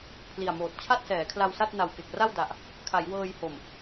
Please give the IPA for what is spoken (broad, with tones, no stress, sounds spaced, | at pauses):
pʰ l i˨˩ a̯ m oː˨˩ t̚ t͡ɕʰ a˥˩ t̚ s ɛː˩˦ kʰ l a˧ w s a˥˩ t̚ n a˨˩ w k e˨˩ k̚ r a˥˩ w d a˨˩ ʔ | kʰ a˩˦ j w ɤː˧ j h o˨˩ m